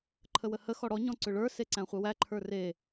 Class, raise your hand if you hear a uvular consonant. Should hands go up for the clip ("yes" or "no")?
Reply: yes